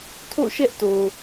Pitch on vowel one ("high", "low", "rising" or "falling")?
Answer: falling